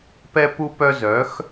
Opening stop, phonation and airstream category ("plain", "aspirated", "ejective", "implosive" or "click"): plain